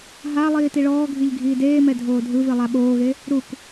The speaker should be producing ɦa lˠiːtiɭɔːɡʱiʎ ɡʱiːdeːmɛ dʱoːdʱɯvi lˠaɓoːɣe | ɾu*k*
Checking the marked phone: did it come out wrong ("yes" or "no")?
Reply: no